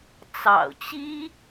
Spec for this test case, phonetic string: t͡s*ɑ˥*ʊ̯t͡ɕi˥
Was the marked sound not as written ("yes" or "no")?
yes